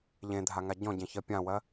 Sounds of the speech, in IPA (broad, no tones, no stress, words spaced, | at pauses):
ʎẽdʱaŋa ɟɔ̃ɟɛ̃çɜ pʲãwɜ